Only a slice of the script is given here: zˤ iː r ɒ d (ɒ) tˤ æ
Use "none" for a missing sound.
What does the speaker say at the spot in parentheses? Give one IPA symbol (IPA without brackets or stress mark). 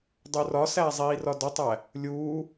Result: ɒ